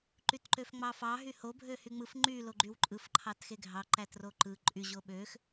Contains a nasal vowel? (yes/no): no